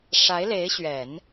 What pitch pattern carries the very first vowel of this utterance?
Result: rising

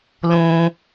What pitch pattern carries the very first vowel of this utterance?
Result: low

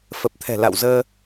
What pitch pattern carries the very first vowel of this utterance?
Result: low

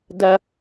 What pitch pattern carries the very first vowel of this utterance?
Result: high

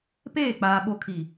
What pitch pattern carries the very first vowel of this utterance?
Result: falling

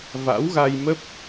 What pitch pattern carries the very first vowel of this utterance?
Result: rising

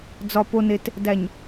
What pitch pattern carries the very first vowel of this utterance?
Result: low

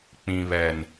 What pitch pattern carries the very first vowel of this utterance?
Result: low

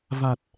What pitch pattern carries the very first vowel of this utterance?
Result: low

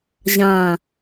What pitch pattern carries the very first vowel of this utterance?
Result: low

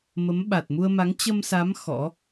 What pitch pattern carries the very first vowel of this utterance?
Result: rising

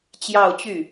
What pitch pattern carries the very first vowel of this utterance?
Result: falling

